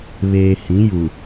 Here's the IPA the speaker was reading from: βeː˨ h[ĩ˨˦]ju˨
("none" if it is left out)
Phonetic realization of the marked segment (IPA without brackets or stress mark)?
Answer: ĩ˨˦